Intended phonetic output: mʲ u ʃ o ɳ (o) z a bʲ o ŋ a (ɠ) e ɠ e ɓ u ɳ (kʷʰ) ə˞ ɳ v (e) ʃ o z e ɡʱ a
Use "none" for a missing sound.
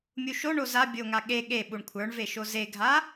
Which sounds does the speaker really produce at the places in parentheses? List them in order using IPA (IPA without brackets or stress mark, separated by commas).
o, ɠ, kʷʰ, e